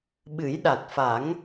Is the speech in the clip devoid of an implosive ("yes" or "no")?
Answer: no